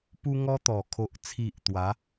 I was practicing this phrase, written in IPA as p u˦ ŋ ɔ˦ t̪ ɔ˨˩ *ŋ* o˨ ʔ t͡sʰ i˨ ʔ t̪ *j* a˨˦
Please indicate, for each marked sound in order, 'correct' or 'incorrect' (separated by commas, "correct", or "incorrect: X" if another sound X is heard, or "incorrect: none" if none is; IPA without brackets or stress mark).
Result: incorrect: kʰ, incorrect: w